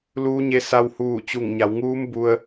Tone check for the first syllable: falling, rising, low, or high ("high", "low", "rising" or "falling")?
rising